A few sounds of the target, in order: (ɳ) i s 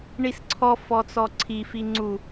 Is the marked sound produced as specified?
yes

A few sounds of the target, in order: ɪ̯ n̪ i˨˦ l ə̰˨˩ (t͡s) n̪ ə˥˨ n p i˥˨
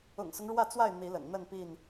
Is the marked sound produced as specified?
no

